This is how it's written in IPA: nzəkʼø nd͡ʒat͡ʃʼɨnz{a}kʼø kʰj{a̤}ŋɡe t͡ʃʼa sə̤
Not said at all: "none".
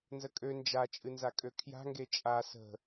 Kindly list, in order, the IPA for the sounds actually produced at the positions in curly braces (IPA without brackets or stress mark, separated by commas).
a, a̤